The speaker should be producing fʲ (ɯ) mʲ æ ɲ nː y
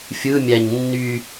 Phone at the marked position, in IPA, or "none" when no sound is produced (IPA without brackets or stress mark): ɯ